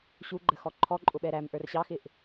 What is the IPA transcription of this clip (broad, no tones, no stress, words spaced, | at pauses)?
ɕuɡ͡ǃəxɔ ǃʰɔǃʼʊɓɛ ɾæmʔə˞r ɕɑxɪʔ